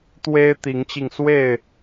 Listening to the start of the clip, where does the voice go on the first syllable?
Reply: high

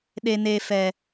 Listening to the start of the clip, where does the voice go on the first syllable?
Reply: low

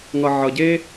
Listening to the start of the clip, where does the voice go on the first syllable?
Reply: low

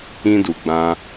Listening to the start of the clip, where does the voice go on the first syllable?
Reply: high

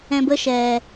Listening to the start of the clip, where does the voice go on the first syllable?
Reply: high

